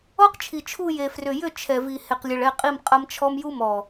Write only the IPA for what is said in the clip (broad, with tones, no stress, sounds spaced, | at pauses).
ɔ˦ q t͡ʃʰ i˨ t͡ʃʰ u˦˨ j e˨ f r ʏ˨ j ʏ˦˨ t͡ʃʰ ɛ˨ v i˨ h e˨ q lʲ ə˨ ɭ ɛ˦˨ qʼ i˦˨ m qʼ ɐ˦ m t͡ʃʰ ɔ˦ m j u˦ m ɔ˨